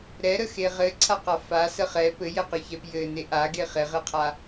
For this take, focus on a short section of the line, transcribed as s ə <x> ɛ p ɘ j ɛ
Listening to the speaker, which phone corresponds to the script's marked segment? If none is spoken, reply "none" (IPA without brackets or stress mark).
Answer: χ